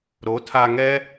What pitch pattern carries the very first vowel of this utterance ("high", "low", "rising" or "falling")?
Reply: rising